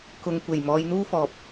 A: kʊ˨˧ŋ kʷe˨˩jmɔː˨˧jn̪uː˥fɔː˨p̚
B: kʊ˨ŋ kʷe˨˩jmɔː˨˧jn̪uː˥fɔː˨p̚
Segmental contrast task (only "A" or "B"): B